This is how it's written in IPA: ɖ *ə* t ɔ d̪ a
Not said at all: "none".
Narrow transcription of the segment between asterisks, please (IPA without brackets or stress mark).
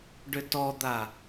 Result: ʏ